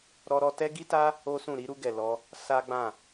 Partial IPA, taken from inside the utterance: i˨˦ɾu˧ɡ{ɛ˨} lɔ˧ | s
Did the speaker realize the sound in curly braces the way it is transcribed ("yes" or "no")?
yes